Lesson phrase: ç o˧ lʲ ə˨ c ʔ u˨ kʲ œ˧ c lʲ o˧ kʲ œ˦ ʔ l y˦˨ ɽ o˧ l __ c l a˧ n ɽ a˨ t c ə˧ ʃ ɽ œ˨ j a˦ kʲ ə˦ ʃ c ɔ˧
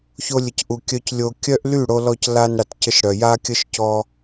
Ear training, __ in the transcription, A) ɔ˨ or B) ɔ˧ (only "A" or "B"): B